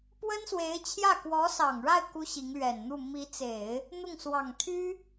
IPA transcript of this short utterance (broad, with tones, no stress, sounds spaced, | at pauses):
p w ə˥ n s w e˧˥ ɪ̯ t͡ɕʰ j ä˥˩ k w ɔ˧˥ s ɑ˨˩ ŋ ɻ a˥˩ ɪ̯ k u˥ ɕ i˧˥ ŋ l ɥ ɛ˨˩ n n̪ u˥˩ m i˧˥ t͡s e˨˩˦ ɪ̯ | n̪ ʊ˥˩ ŋ s w ɑ˨˩ ŋ t̪ʰ y˥